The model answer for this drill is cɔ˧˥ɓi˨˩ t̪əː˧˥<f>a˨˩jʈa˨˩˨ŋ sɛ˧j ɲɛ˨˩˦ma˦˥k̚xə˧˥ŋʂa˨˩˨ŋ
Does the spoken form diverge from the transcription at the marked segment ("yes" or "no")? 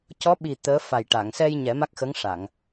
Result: no